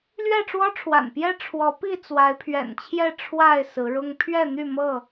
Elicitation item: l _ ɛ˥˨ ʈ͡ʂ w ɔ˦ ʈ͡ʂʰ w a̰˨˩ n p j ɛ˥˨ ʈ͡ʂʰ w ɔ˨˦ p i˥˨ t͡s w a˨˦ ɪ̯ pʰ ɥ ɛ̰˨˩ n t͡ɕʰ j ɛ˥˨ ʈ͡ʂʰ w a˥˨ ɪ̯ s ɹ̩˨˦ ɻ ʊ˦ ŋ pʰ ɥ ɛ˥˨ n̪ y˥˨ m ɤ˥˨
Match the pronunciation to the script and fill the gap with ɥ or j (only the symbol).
ɥ